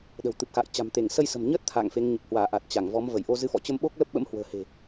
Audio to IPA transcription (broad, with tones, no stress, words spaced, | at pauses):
ɗə̤˨˩wt̪ɨ˨˩p̚xa̰ː˧˨j t͡ɕa̤˨˩mt̪e˧˩ŋ sə˧jsə̤˨˩mɲəː˦˥t̚ t̪ʰa̰ː˧˨ŋfe˨˦ŋ ɲə˨˩p̚hwaː˧˩ ʔa˨˩t̚ t͡ɕa˧˩ŋvɔ˨˦m və˧˩jʔo˧zɨ˧fɔ̰˧˨ t͡ɕə˧mɓo˦˥k̚ lə˦˥p̚ɓə̰˧˥mhwə̤ː˨˩he̤˨˩